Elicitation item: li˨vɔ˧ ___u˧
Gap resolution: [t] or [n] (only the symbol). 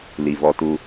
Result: t